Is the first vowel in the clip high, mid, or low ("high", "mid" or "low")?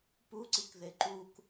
high